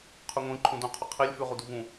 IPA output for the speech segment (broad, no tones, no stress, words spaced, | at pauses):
qʰʉŋʷĩ ǃʰũdũ qʰɵqʰilʲ fʉʁuduvũ